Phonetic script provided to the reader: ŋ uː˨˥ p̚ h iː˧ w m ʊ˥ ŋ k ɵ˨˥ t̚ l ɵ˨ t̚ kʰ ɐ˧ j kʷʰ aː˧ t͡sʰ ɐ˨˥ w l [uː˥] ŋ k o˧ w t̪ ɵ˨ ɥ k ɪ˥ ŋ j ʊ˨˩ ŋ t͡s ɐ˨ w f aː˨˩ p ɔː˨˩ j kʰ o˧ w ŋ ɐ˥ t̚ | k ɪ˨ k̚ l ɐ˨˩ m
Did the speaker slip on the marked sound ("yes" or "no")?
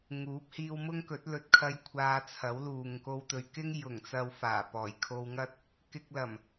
yes